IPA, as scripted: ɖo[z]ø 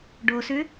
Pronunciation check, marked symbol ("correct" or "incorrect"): incorrect